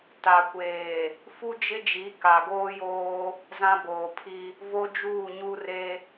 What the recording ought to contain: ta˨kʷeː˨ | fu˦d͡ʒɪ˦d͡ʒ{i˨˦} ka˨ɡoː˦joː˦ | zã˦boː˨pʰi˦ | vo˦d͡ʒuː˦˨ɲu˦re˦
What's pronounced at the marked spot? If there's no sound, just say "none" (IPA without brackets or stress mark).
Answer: i˨˦